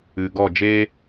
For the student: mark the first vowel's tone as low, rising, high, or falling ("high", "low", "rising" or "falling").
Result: low